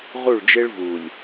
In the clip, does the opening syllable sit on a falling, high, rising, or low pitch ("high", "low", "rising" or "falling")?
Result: falling